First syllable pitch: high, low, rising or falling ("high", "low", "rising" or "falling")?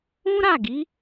high